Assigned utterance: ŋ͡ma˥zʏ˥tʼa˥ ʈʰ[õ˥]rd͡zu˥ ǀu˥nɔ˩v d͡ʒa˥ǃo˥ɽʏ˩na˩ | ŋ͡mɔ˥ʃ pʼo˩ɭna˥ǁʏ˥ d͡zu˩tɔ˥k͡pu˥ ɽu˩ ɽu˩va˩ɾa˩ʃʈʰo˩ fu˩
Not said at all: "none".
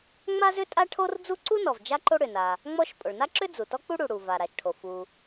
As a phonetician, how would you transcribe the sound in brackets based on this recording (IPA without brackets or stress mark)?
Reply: o˥